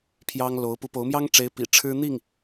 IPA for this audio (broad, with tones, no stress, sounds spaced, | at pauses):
pʰ j ɑ˥ ŋ l o˧˥ ʊ̯ p u˧˥ p o˧˥ ʊ̯ m j ɑ˥ ŋ ʈ͡ʂ e˧˥ ɪ̯ p ḭ˨˩ ʈ͡ʂʰ ɻ̩˥ n̪ i˥˩ ŋ